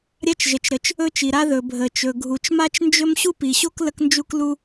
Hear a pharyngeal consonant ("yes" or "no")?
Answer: no